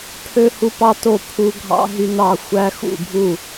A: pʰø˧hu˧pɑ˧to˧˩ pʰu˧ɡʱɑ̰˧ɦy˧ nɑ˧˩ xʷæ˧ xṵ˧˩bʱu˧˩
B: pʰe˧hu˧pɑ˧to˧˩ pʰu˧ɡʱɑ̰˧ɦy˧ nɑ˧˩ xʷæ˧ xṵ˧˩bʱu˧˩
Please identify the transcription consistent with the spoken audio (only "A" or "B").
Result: A